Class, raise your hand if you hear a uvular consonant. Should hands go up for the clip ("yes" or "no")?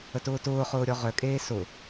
yes